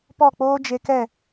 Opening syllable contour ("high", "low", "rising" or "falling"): falling